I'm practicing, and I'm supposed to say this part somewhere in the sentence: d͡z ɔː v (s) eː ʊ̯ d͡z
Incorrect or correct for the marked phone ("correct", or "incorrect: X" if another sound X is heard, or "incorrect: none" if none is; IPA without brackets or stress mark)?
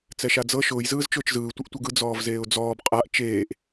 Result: incorrect: z